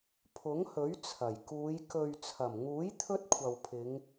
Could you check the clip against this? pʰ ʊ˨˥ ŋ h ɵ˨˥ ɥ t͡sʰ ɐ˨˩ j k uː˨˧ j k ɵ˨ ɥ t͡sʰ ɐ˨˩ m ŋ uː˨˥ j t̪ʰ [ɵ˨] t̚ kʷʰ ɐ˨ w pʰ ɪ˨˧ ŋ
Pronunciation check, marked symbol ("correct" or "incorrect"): incorrect